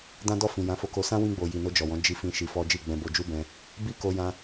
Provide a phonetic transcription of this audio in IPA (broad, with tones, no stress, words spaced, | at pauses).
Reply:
dã˦dɔ˦˨fĩ˨ jã˨˦fo˧ko˧ sã˦wĩ˧ɡ͡bo˨ji˨ no˧d͡ʒɔ˨wɔ̃˨˦ d͡ʒi˧fĩ˧ ʃi˧fɔ˦ d͡ʒi˦˨ɡ͡bɛ̃˧bo˧ d͡ʒu˦bɛ̃˧ | bi˦ko˧jã˧